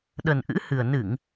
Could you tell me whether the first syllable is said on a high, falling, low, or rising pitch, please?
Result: low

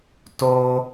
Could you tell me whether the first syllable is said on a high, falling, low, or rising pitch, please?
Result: high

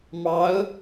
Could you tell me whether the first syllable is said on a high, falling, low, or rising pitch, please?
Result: rising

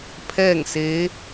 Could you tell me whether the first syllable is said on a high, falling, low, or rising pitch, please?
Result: falling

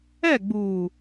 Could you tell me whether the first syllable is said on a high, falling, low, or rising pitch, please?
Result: falling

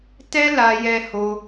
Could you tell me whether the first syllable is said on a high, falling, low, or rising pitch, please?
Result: high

